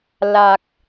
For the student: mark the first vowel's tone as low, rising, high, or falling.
low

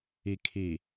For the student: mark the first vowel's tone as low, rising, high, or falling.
low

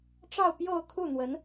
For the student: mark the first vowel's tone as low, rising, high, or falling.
falling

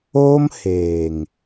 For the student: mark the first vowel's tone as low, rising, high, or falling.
high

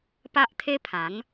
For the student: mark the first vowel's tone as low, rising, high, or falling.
high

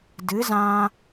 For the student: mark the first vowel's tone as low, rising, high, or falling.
rising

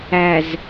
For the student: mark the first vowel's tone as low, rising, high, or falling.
low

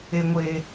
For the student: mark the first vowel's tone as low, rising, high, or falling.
low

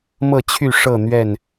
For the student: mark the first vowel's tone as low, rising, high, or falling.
falling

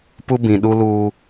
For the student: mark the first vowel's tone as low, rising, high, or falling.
high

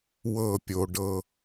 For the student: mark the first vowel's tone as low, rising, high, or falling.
falling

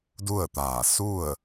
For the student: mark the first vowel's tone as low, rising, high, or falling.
falling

